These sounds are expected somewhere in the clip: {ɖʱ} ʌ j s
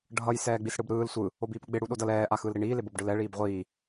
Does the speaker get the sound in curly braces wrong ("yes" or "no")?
no